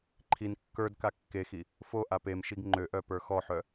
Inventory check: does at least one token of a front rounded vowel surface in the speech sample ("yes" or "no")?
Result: yes